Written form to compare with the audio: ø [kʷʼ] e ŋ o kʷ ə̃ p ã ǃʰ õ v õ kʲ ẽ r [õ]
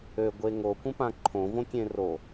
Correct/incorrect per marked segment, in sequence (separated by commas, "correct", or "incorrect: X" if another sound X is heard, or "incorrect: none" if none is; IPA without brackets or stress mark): incorrect: ɡʷ, incorrect: o